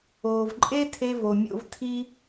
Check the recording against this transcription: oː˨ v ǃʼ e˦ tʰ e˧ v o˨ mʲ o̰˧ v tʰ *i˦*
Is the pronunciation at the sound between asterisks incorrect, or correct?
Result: correct